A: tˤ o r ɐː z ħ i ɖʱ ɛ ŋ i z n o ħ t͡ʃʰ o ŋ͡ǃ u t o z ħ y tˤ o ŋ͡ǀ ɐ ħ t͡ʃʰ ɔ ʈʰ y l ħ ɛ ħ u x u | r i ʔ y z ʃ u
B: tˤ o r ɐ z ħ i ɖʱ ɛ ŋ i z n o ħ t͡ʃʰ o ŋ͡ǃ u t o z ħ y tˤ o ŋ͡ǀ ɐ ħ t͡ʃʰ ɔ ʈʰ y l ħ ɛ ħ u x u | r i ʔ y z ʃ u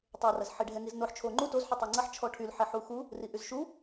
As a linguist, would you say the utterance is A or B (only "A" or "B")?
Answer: B